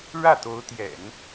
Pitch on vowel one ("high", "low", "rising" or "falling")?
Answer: falling